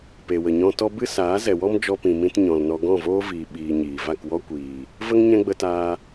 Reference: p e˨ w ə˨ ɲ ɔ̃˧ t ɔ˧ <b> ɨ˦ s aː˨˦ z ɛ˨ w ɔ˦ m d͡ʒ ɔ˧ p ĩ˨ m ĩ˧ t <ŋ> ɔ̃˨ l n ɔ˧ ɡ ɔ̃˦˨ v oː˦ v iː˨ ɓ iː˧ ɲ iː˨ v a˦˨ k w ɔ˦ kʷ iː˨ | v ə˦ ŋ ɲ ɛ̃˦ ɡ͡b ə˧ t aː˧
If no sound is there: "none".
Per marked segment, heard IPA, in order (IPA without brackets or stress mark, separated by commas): b, ɲ